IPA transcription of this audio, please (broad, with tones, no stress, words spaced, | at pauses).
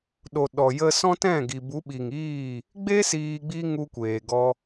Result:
ɗo˨ ɗɔ˨jə˧sɔ̃˦tɛ̃˦˨ ɡi˨bu˨˦ɓi˨ŋiː˦˨ | ɡ͡be˦ siː˧ɡ͡bi˦ ŋu˧kʷeː˨ɡɔ˧